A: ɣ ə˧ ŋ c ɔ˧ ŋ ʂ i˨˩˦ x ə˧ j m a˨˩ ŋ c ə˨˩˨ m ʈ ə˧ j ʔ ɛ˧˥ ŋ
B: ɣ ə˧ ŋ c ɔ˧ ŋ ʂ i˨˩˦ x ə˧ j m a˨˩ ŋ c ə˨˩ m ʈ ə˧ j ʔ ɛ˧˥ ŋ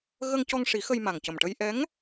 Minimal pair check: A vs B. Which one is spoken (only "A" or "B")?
B